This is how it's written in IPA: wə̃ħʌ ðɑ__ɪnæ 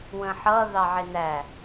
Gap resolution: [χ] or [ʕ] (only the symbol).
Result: ʕ